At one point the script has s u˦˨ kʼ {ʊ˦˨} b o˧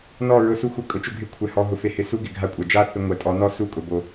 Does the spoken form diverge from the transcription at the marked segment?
yes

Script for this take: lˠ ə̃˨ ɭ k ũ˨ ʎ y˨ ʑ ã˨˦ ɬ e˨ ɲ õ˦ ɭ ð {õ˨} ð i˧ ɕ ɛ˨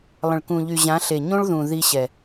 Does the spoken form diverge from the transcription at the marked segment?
yes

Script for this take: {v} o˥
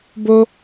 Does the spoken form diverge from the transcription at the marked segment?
yes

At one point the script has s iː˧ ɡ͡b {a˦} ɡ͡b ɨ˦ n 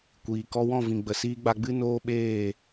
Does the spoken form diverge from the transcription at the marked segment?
yes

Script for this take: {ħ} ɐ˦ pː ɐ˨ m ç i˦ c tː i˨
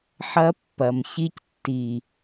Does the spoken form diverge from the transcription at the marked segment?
no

